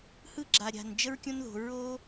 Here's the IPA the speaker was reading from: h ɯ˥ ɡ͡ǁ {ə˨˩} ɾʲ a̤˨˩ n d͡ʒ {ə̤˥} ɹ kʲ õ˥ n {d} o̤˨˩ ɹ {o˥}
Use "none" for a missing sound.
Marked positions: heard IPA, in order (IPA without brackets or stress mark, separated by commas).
a˨˩, ə˥, ð, o˥